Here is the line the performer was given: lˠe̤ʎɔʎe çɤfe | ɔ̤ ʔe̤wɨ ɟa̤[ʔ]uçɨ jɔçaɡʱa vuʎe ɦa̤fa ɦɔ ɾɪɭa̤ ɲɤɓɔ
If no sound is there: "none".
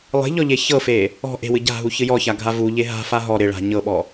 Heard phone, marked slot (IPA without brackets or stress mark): ɦ